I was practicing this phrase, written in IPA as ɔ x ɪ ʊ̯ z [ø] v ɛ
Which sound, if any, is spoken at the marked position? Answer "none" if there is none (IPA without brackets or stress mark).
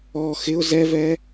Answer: ɛ